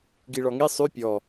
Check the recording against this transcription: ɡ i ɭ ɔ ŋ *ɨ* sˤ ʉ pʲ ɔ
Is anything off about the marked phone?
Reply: yes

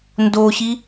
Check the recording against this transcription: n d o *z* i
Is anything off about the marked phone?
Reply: yes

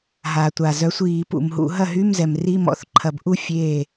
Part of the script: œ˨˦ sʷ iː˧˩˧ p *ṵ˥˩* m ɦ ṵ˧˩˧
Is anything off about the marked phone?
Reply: yes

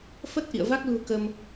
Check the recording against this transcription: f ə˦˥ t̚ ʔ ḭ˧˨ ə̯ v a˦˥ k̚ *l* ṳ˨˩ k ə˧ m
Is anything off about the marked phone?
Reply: no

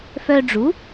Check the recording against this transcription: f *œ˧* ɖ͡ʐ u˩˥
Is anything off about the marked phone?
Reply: no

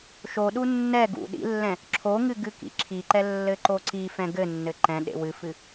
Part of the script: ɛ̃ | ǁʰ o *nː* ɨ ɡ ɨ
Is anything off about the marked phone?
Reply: yes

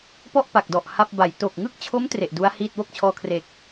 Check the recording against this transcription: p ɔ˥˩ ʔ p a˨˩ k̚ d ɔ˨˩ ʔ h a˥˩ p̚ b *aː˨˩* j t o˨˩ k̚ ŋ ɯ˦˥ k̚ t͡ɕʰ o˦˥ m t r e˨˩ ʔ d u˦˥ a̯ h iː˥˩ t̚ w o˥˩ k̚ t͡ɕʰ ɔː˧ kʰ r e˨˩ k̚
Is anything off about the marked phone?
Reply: yes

